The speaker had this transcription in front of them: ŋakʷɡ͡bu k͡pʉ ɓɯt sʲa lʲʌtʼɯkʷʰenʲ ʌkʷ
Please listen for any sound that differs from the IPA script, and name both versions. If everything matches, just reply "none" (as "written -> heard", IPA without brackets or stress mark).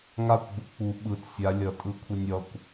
ʉ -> u